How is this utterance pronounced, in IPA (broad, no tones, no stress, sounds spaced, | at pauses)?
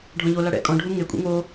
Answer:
ɖʱ ɔ̃ ʎ o l a ɽ ɛ̰ kʼ ɔ̃ ɖʱ u ŋ e kʷʼ ḛ ŋ o